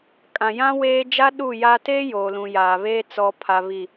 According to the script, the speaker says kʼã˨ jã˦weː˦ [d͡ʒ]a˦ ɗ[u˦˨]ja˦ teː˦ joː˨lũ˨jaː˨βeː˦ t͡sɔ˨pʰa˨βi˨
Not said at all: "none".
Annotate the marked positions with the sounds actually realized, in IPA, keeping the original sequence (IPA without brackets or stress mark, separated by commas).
d͡ʒ, u˦˨